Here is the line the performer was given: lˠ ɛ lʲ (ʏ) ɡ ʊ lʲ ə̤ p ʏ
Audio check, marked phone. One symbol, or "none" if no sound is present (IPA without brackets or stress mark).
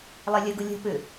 ə